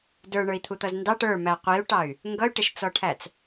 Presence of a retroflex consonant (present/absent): present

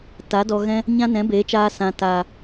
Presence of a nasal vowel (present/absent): present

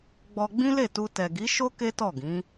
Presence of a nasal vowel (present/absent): present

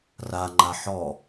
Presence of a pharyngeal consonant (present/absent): present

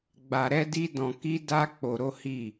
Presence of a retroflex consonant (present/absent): absent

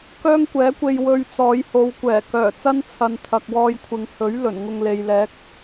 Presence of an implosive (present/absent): absent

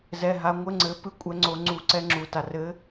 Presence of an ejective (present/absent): present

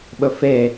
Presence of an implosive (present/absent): present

